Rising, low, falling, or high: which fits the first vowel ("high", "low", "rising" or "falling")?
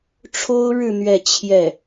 high